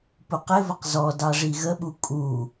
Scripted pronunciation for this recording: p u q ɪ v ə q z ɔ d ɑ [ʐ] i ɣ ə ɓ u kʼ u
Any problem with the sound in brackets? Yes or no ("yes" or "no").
no